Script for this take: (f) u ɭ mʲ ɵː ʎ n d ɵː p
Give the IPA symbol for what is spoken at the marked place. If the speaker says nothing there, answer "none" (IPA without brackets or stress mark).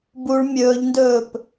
b